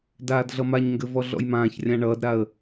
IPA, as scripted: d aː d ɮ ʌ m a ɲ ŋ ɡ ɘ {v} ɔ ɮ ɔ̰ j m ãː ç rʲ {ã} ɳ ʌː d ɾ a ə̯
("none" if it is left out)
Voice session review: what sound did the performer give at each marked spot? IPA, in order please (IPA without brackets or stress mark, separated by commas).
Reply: v, ã